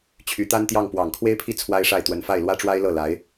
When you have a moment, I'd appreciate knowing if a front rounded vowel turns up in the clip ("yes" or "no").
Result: yes